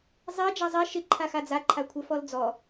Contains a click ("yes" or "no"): yes